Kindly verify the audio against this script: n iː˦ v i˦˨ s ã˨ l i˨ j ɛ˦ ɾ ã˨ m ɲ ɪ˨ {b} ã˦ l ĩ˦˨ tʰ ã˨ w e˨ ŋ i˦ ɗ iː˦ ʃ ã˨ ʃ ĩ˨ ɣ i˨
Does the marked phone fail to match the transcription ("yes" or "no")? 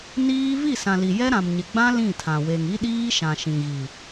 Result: yes